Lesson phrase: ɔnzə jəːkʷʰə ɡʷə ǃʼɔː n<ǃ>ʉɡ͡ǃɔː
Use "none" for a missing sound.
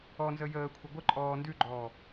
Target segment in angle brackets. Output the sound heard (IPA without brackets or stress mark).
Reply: d